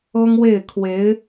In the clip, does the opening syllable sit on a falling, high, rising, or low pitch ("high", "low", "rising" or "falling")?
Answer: high